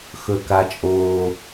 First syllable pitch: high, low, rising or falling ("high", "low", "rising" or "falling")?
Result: high